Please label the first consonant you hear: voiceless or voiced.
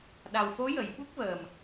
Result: voiced